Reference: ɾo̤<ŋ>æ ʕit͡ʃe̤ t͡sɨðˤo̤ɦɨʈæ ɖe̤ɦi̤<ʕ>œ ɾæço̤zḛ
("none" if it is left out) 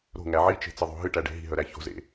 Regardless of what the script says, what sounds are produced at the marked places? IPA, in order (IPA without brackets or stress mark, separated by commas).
ŋ, ɦ